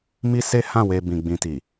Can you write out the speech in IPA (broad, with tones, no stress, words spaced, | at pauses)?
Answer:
mi˦se˦hã˦˨ we˧ bĩ˨ɡ͡bĩ˨ti˨